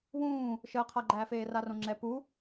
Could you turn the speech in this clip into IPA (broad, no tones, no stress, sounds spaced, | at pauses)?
w ũː | ʃ əː qʰ a ɡ͡ǃ æː f eː r a r õ ŋ͡ǁ ɛ p u